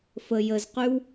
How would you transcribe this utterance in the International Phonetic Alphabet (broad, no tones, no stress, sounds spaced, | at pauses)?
f ə j ə z q y w